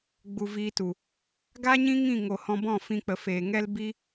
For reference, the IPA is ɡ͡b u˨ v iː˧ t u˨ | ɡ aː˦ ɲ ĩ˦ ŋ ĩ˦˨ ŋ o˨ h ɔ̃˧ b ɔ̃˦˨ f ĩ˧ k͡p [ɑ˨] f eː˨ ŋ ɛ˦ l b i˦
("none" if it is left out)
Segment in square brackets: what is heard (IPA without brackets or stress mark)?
ə˨